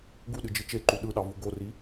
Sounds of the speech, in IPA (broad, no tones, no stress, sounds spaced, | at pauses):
ɡ u ɗ ɨ d͡ʒ ɨ t͡ʃ e ǃ u ɗ ɯ ɗ ɑ v u ɡ o r i